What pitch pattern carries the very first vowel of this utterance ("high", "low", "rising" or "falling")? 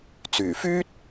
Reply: low